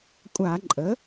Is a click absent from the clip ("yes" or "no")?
no